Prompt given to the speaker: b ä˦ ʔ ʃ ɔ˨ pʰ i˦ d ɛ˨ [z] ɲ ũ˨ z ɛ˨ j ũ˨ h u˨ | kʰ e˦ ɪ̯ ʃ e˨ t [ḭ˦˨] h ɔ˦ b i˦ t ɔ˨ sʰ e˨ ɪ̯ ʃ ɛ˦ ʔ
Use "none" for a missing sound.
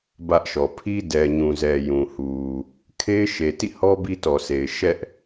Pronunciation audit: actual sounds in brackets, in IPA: none, ḭ˦˨

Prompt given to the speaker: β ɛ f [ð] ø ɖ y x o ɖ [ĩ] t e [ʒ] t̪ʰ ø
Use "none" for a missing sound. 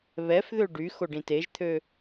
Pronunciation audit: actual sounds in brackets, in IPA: ð, ĩ, ʒ

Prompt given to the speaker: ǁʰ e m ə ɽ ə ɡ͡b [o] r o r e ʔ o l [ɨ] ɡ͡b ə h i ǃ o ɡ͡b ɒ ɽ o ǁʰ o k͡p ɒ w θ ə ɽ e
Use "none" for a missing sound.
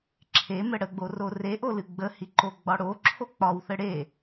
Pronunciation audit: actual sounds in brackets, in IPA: o, ɨ

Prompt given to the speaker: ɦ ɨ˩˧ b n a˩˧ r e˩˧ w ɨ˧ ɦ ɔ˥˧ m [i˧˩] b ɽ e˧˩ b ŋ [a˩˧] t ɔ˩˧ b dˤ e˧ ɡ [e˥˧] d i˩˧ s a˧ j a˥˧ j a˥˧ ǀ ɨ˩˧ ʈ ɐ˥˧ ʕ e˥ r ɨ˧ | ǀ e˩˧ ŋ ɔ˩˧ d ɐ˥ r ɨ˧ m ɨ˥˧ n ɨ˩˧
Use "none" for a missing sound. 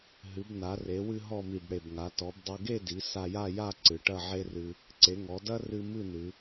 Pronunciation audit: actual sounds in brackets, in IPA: i˧˩, a˩˧, e˥˧

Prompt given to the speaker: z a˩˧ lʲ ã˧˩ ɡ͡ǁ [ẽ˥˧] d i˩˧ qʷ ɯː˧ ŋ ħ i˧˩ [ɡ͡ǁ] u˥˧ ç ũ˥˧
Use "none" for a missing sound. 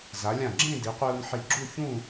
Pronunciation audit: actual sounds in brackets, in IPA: ẽ˥˧, ɡ͡ǁ

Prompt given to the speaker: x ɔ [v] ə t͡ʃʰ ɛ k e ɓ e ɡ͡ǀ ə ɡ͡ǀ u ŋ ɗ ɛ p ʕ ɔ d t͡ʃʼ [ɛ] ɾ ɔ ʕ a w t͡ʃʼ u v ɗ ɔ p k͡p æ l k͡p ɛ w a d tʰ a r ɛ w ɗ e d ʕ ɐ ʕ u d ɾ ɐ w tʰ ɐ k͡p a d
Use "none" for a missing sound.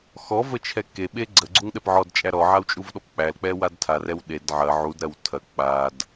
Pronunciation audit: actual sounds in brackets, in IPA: v, æ

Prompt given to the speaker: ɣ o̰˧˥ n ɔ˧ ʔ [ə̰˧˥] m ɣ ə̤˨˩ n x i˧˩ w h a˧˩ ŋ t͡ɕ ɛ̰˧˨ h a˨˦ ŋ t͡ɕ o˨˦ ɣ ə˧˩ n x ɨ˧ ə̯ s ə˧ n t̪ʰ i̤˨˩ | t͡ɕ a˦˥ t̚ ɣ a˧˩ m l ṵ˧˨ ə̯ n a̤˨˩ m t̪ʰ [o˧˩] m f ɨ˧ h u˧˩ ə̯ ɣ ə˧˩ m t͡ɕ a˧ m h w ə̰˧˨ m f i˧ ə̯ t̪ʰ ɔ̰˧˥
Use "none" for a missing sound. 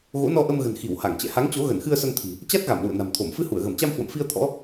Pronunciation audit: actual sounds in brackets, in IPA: ə˧, o˧˩

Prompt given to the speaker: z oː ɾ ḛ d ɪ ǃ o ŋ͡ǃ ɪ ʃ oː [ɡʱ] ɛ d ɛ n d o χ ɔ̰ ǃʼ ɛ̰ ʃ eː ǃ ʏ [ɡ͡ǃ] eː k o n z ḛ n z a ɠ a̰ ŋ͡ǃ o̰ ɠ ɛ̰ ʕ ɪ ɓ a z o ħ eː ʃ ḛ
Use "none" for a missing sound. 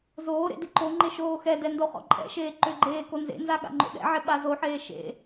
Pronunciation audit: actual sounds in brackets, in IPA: x, ɡ͡ǃ

